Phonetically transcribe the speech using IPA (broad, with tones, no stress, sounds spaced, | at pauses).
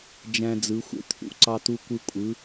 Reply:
d͡ʒ æ̃˦ d͡z ɯ˨˦ xʷ ḛ˦ t̪ʰ ṵ˨˦ ǀ ɑ˦ t̪ u˦ kʷ ɯ˦ kʷʼ ɯ˨˦